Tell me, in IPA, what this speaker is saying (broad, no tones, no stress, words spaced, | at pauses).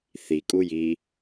θikʼuji